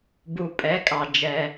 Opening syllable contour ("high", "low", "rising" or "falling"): low